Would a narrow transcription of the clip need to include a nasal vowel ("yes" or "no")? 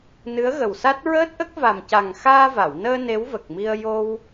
no